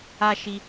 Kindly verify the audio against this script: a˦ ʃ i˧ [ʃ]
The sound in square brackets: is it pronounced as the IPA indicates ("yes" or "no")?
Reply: no